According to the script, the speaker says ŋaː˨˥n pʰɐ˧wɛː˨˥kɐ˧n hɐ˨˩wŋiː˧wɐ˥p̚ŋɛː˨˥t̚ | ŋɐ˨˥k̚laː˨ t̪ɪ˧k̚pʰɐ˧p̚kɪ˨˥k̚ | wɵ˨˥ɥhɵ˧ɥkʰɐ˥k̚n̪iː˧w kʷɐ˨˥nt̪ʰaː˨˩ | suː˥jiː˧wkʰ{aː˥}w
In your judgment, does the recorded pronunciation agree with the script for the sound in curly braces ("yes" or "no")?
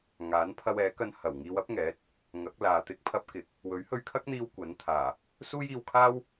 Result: yes